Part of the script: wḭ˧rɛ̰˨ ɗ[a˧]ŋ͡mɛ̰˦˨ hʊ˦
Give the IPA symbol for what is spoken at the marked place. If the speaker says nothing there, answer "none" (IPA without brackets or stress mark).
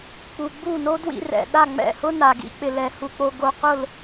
a˦˨